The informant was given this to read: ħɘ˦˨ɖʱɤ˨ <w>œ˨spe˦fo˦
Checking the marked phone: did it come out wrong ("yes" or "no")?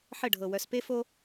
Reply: no